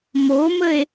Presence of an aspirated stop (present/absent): absent